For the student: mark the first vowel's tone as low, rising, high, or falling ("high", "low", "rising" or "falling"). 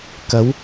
rising